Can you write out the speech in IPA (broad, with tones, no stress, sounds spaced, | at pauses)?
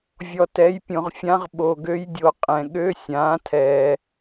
vʲ ɔ˨ t ɛ˩˥ j pʲ õ˨ ʁ fʲ ã˧˥ ʁ ɓ o˨ ɡ ø˧˥ j dʲ o˩˥ qʼ ɛ̃˨ ɠ ø˧˥˧ sʲ ãː˩˥ tʰ ɛː˨